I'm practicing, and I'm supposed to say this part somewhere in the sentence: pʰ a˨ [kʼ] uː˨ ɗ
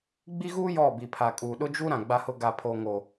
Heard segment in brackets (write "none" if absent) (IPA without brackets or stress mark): kʼ